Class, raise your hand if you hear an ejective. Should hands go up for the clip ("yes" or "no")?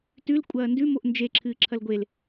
yes